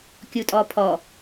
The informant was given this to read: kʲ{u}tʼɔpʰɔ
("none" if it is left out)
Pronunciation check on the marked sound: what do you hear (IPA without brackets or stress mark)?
u